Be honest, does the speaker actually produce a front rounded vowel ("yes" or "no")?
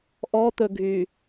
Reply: yes